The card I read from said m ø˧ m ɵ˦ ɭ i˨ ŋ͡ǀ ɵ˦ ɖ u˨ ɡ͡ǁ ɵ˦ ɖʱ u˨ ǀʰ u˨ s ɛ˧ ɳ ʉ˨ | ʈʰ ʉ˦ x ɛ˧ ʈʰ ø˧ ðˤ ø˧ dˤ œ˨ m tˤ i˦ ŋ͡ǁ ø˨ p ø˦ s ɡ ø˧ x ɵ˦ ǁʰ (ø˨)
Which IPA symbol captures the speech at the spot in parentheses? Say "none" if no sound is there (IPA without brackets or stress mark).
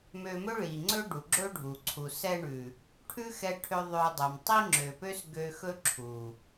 u˨